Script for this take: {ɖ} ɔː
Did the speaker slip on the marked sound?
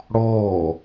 yes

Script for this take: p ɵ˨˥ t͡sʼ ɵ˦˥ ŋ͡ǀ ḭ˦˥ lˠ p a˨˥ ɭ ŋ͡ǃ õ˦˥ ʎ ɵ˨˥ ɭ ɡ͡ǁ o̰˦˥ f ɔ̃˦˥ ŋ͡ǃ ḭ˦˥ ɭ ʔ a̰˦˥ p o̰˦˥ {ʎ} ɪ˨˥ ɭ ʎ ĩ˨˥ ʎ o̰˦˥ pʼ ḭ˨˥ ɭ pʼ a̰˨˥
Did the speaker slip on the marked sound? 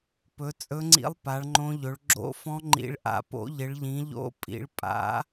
no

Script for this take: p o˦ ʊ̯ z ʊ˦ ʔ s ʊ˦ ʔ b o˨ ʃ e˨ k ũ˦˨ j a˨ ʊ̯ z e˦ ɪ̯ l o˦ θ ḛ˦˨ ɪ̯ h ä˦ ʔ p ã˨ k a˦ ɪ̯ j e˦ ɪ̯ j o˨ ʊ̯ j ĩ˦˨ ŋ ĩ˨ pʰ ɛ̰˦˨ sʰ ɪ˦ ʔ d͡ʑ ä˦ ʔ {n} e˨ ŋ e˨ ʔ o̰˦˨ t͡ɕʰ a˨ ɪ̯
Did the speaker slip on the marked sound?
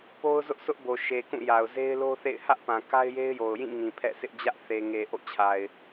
yes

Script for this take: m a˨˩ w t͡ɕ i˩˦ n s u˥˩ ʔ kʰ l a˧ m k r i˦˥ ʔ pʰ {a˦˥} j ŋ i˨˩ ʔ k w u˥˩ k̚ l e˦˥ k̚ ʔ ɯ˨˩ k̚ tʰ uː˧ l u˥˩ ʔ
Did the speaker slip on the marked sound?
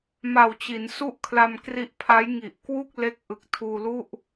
no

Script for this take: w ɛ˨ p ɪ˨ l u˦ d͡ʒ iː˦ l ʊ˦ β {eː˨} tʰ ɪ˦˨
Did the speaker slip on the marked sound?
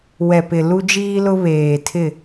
no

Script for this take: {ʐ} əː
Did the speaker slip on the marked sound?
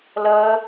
yes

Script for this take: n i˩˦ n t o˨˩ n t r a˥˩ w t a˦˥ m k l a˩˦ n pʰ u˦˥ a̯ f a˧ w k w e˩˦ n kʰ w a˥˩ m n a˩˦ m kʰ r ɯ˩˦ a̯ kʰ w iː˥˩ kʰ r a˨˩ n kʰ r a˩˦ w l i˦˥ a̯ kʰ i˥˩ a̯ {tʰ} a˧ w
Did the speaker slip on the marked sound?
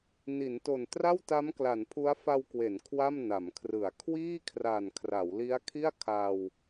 yes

